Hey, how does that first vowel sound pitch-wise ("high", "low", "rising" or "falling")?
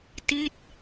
falling